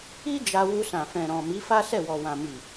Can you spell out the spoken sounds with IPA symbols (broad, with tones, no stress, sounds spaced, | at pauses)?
i˦ d͡ʒ a˧ w u˧ s ã˨ f ɛ̃˨ ɾ ɔ̃˨ m i˨˦ f a˦ s ɛ˦˨ w ɔ˨ w ã˨ m i˨